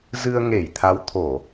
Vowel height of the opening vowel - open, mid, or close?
close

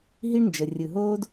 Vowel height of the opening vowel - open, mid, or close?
close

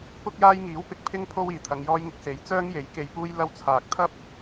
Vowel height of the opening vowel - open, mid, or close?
close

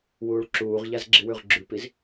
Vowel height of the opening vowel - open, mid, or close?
close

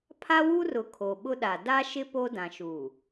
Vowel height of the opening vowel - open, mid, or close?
open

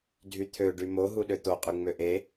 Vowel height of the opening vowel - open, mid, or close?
close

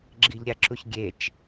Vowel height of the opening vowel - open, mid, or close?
close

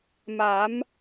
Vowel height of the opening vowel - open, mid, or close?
open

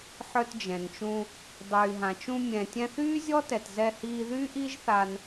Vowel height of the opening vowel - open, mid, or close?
mid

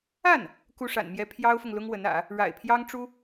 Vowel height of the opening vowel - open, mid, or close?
open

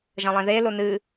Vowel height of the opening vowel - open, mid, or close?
open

